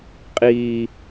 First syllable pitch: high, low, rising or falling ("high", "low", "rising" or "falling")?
low